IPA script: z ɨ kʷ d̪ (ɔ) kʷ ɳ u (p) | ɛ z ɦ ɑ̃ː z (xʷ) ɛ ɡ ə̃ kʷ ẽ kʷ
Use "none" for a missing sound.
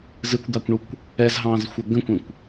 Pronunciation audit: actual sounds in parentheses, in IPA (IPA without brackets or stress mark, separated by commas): ɑ, kʷ, xʷ